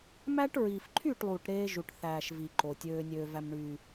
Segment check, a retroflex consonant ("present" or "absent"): present